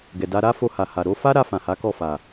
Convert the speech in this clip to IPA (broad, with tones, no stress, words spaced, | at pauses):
ɡɛ˨da˧ɾa˦ fo˧ha˨ha˨ ɾo˧fa˦ɾa˧ fã˨ha˨˦ kɔ˦˨fa˨